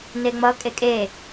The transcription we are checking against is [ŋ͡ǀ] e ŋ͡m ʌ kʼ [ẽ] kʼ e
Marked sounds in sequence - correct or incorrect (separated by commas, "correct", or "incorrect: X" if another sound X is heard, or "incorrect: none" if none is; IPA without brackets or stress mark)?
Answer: incorrect: n, incorrect: e